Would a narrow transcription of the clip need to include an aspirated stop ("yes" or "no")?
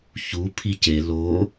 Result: yes